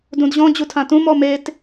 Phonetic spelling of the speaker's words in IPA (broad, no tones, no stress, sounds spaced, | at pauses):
d ũ d ʑ ɔ̃ d͡ʑ u tʰ ã t ũ m ɔ m e t